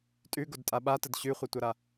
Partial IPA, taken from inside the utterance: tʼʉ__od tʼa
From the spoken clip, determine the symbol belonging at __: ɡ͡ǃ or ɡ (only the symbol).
ɡ